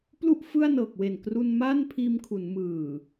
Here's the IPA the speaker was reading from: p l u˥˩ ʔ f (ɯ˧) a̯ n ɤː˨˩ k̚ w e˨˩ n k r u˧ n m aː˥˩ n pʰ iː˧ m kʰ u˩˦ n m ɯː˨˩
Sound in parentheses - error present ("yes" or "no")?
yes